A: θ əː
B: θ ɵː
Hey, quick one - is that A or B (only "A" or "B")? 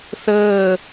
A